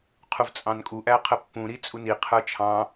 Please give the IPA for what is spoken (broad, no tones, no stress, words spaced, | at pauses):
qʰuvt͡sʼɑ̃nkʼu ʔæqʰəpːũ ɾit͡sʼuni qʰə˞t͡ʃʰɑ̃